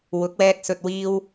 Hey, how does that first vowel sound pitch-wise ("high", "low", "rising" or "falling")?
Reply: rising